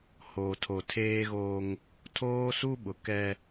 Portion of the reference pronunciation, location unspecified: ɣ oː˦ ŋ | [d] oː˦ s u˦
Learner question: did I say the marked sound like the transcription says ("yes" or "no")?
no